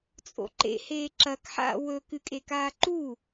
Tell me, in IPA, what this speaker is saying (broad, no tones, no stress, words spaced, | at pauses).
t͡sʼo̰ǃḛ heːǁɐk ħa̰ wɵ kɨkʼekaːǃu